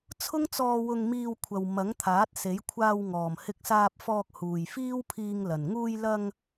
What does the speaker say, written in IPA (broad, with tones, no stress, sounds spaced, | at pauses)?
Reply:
t͡sʰ ʊ˥ ŋ t͡s ɔː˧ w ʊ˧ ŋ m iː˧ w kʷʰ ɐ˨ w m ɐ˨˥ ŋ t̪ʰ aː˨˥ t̚ s e˨˥ j kʷʰ aː˧ w ŋ ɔː˨˩ m h ɪ˧ k̚ s aː˧ p̚ f ɔː˧ k̚ h uː˨˩ j f iː˥ w pʰ iː˧ ŋ l ɐ˨˩ n ŋ uː˧ j l ɐ˧ ŋ